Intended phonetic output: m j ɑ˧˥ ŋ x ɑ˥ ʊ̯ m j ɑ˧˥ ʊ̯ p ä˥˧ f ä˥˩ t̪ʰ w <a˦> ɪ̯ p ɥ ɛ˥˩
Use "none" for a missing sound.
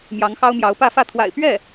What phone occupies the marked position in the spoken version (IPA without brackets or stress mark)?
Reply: a̰˨˩